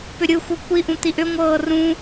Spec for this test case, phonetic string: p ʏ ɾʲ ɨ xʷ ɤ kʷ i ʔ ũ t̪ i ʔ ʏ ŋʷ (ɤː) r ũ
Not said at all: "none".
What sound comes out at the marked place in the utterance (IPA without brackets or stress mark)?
ɤː